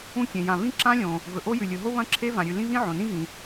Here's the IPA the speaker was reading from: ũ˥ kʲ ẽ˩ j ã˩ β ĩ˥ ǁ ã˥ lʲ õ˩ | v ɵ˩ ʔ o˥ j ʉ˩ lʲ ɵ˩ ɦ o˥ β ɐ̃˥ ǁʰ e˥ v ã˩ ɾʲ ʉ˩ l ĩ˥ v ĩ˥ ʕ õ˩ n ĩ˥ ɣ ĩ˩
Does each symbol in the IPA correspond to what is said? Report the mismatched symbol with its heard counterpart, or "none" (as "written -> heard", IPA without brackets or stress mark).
none